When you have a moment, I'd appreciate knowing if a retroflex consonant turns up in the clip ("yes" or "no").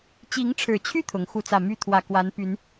yes